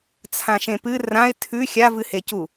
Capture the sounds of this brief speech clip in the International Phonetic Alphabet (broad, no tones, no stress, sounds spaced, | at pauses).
t͡sʰ ã ʃ ẽ p ɨ r ã ɪ̯ tʰ ʉ xʲ a v ɨ h e c u